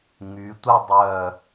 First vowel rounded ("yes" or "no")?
yes